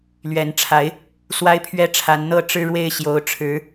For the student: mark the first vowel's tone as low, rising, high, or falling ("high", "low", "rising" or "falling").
rising